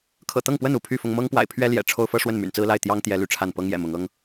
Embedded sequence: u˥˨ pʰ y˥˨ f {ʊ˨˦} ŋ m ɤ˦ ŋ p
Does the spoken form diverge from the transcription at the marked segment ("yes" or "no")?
yes